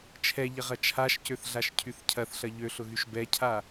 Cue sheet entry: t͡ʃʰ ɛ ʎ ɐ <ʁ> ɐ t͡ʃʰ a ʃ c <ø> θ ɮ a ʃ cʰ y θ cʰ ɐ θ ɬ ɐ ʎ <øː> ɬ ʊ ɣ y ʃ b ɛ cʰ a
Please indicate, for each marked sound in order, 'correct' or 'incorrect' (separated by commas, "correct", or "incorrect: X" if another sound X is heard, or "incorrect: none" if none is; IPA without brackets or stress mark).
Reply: correct, correct, incorrect: ø